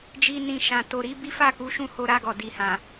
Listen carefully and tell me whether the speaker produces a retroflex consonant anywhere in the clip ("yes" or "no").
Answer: no